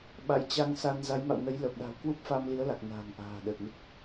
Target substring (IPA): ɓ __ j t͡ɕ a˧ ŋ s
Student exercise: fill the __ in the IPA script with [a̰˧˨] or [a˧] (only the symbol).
a̰˧˨